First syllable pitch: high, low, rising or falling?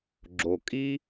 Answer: low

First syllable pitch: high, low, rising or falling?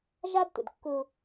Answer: high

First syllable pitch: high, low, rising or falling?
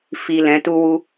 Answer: low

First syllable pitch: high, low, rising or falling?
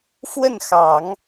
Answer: falling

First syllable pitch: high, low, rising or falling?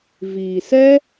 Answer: low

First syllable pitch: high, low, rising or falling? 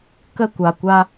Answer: falling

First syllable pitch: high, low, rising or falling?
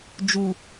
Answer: low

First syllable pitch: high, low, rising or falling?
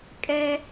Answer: high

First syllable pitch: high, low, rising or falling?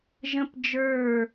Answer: high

